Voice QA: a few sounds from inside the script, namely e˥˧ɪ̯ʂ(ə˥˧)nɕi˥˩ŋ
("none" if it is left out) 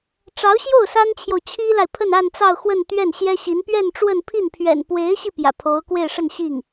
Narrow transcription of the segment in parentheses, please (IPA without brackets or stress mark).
ə˥˧